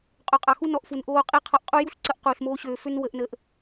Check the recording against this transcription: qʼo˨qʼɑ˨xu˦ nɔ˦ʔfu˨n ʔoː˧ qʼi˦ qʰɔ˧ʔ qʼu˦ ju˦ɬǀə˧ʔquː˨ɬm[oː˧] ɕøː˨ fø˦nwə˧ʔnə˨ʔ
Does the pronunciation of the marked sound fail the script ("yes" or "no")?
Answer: no